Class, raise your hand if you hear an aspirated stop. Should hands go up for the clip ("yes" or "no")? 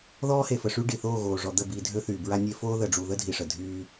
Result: no